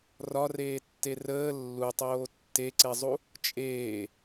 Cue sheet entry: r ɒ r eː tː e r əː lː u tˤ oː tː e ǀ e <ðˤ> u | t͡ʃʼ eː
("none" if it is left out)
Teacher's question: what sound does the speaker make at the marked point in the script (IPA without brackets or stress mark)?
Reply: zˤ